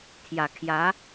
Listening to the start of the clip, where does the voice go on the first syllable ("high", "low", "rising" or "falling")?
low